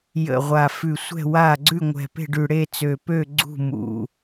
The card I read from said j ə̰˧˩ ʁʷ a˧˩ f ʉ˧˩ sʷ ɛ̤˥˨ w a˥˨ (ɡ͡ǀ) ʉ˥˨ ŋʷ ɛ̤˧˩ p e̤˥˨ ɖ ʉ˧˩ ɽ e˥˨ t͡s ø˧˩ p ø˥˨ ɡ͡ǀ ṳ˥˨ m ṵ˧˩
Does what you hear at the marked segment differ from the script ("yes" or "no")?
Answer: no